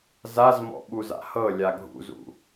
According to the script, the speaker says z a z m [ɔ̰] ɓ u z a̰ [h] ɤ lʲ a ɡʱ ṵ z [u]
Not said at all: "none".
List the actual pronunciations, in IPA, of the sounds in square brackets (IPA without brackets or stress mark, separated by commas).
ɔ̰, h, ṵ